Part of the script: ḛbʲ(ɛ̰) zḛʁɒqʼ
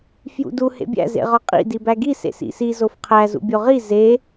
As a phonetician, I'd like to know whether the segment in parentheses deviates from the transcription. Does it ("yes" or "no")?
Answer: yes